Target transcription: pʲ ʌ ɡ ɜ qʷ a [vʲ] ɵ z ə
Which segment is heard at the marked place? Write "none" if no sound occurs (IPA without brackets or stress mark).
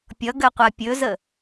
pʲ